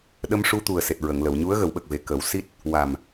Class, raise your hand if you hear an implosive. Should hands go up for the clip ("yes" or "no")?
yes